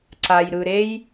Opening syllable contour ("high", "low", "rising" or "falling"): low